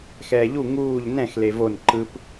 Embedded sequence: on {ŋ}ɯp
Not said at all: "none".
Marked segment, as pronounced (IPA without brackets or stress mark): ǃ